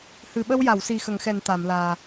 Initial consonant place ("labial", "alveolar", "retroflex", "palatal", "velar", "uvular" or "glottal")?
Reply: glottal